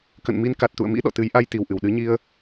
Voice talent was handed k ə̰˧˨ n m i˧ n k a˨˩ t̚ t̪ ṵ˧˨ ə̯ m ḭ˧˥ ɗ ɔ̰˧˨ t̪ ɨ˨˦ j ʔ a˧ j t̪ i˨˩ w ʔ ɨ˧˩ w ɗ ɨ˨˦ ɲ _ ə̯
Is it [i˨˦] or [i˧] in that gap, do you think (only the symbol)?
i˧